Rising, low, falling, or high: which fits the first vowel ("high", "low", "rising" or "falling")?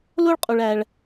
high